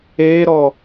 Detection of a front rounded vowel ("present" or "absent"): absent